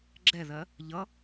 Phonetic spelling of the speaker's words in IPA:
ɡ͡ǁ ɛ ð ɜ | ʎ ʌ

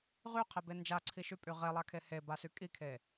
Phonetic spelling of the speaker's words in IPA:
ʁ y qʰ e b e n d͡ʒ a ǀʰ i ʃ y pʼ y ʁ e lˠ a kʰ e h e b a s y kʼ i kʰ e

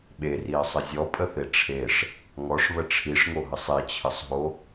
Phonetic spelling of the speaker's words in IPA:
ɓ e r i ɐ̯ sˤ ɘ zʲ ɔ pʼ ə θ e ʈ͡ʂʰ e ʂ | ŋ ɔ ʂ β ə ʈ͡ʂʰ i ʂ ŋ o ɦ ə sˤ e t͡ɕʰ ɘ sˤ ɦ o

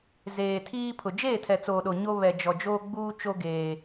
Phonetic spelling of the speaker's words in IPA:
z eː˨ tʰ iː˦ pʰ ʊ˨ d͡ʒ eː˦˨ tʰ ɛ˨ t͡s oː˨ ɗ o˨ ɲ o˦ β ɛ˨ d͡ʒ ɔ˨ d͡ʒ oː˦ ɡ͡b uː˦ t͡ʃ o˦ ɡ eː˦

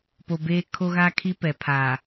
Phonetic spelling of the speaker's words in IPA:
p o˨ b eː˦ kʰ o˦ ɣ a˦ kʰ i˦ p ɛ˨ pʰ a˨

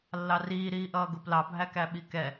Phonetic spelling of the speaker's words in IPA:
lː ɑ r iː ɾ iː ʔ ʌː ɡ ʊ p l ɑ bʱ æ k æ ɓ i k ɛ

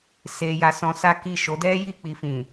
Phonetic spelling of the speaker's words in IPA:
s e˧ j a˧ s ɔ̃˧ s a˦ k i˦˨ ʃ o˨˦ d ɛ˦ j i˦˨ k͡p i˧ f ĩ˨

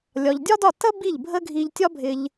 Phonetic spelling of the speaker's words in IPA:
lʲ ɒ˩ ʎ dʲ ɒ˥ d ɒ˥˩ t ə˥ b i˥˩ ʎ bʱ ə˥ ɡʱ i˧ ʎ tʲ ɒ˥ bʱ ɪ˧ ʎ

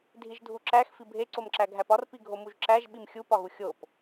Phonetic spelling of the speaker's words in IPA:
dʱ i ʒ dʱ u ǁ æ x f i bʱ e ǀ o m ǁ æ ɡʱ æ p ɒ r p i ɡʱ o m u ʒ ǁ æ ʒ ɓ i m xʲ u p ɒ ɣ u xʲ o p

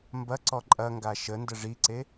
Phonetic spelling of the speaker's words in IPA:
m b ɐ ǀ ɔ ǃʼ ɐ ŋ ɡ a ʃ ə n d ə ʐ i ǀ e

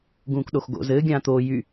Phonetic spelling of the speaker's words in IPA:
ɡ ũː k ɗ o x ɡ o̰ z ɘː ɡʲ ãː t̪ oː j y

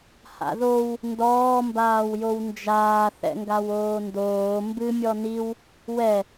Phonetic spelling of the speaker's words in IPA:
h a̰ ð o w | n d ɔː m b aː w j o w n d͡ʒ aː θ ɛ̰ ŋ ɡ a w oː n d oː m b ɨ mʲ ɔ n i w | w ɛ

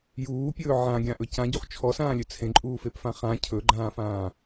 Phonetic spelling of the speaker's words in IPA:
j uː pʲ ɵː ʕ ã ɡʲ ã ʔ ɵ c ã ɟ u χ t͡ʃʰ ɔ s ãː lʲ ɵ t͡sʰ ẽ ǃʼ uː f e p f ã χ ã cʰ ɵ ɡ͡ǃ ãː f ãː

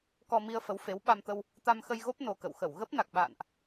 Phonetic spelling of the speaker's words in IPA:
k ɔ˧ m i˧ ə̯ f ə˨˦ w f e˨˦ w ɓ a˧ m t̪ ə˧ w | t̪ a˧ m x ə˧ j ɣ o˦˥ p̚ n o˨˩ k ə̰˧˨ w x ə˧˩ w ɣ ə˦˥ p̚ n a˨˩ k̚ ɓ a̰ː˧˨ n ʔ

